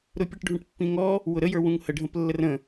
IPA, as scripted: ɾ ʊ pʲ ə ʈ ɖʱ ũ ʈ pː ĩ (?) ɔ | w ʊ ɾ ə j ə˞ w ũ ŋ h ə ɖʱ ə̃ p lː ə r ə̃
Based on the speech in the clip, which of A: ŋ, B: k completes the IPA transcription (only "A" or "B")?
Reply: A